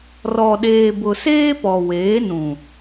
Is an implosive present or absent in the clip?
present